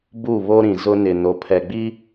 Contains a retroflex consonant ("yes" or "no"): no